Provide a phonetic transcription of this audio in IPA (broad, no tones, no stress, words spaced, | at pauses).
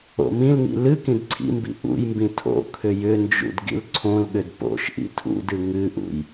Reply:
o̰mĩlŋḭ lɨ kĩdǀʰḭmbḭ ʔṵjmbĩ tʰo̰ kʰʏjʏnd͡ʒṵd ɡḭlǀʰõlɠʏd po̰ʃʔḭ tʰṵdɨ ŋɨʔṵj